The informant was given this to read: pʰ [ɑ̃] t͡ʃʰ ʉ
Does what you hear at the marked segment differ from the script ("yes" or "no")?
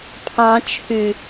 no